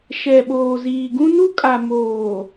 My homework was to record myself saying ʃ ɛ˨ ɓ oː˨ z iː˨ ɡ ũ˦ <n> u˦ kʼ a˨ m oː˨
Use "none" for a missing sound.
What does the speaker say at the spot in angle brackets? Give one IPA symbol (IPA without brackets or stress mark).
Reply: n